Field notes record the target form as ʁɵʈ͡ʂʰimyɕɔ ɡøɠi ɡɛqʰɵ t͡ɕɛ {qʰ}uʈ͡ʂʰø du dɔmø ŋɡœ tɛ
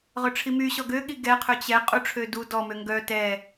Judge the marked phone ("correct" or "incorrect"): incorrect